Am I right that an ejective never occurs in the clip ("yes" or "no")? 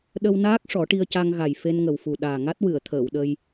yes